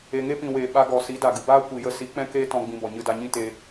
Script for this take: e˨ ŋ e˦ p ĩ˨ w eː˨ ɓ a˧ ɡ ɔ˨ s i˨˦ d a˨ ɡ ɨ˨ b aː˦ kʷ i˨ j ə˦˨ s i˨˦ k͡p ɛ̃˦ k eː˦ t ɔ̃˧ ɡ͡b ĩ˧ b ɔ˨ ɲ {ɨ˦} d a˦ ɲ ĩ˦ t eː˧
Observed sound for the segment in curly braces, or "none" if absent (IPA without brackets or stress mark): ɨ˦